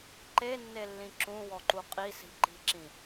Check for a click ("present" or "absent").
present